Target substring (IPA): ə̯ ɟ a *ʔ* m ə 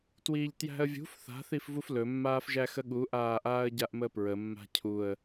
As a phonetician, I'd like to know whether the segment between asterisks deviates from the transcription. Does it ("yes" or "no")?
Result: no